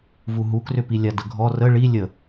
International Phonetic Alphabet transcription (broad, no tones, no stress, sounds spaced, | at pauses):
v u ɦ u k r ʏ p i lʲ a d ə ɡʱ ɔ r ə ɭ i lʲ ə